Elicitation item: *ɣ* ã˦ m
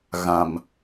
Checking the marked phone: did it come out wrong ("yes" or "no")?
no